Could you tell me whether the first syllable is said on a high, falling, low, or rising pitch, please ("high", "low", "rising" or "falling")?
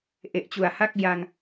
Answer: low